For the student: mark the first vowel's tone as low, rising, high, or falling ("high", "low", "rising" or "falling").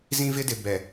high